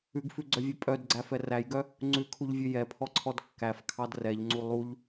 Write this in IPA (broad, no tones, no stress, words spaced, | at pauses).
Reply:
ʉɡfʉɡ͡ǀœvʲɛ pʼœdɡ͡ǀæfɛ ræjɡœ | ŋ͡ǀʉkʰuʎvʲʉ jɛpʰɔǀʰɔd kːæfkʰɑd rɛʎŋ͡ǀu lˠuʎ